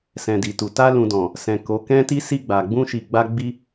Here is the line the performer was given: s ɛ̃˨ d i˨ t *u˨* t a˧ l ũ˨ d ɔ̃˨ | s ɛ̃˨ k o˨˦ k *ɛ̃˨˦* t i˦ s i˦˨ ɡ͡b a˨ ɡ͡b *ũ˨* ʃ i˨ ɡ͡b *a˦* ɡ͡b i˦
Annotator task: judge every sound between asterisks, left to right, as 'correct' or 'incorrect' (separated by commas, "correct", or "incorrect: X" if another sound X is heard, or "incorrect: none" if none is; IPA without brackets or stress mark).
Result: correct, incorrect: ɛ̃˦, incorrect: ũ˧, incorrect: a˧